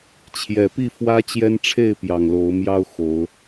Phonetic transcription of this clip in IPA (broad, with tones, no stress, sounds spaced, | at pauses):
t͡ɕʰ j ɛ˨˩ p i˥˨ f w ä˦ t͡ɕ j ɛ˦ n ʈ͡ʂʰ e˥˨ ɪ̯ p j ɑ˨˩ ŋ l o˨˦ ʊ̯ m j ɑ˦ ʊ̯ x o˨˦ ʊ̯